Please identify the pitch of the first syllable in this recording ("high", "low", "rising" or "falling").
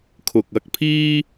low